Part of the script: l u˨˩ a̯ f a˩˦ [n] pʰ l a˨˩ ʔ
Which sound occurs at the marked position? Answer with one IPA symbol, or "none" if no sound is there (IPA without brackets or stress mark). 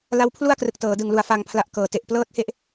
ŋ